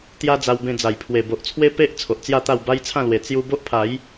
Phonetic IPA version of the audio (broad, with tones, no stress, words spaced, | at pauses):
t̪ja˦d͡za˧wbẽ˧ d͡za˨˩jpʰwe˨˩bo˨ʔt͡sʰwe˦ pe˦ʔ t͡sʰo˨ʔt͡sja˥˧t̪a˥˧w ba˦jt͡sʰã˥˧lwe˨˩ t͡sju˧ bo˦ʔpʰa˨˦j